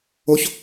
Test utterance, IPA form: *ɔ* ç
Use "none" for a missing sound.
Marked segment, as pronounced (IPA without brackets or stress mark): o